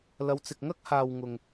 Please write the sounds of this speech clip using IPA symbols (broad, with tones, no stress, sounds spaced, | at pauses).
l ɐ˨˧ w t͡s ɪ˨ k̚ ŋ ɐ˥ k̚ h aː˨ w ŋ ʊ˨ ŋ